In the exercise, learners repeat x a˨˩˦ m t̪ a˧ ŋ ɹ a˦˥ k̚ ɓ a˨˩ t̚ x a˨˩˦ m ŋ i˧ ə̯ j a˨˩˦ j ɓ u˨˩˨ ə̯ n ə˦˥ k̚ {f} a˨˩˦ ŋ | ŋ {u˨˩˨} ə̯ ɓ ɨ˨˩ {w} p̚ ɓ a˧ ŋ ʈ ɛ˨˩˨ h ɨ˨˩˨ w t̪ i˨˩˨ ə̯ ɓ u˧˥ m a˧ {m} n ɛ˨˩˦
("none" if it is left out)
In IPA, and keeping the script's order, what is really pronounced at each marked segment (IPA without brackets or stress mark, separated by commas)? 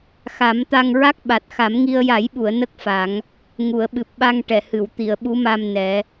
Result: f, u˨˩˨, none, m